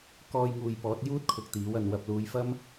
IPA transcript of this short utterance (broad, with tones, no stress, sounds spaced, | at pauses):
k ɔː˧ j ŋ uː˨ j p ɔː˨˥ t̚ j uː˥ t̚ kʰ ʊ˨ k̚ t̪ iː˨˥ w ɐ˨ n w ɐ˨ p̚ l uː˨˧ j f ɐ˥ m